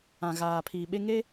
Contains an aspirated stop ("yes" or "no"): yes